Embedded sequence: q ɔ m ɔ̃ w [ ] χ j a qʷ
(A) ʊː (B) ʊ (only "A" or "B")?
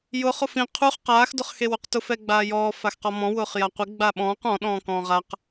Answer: A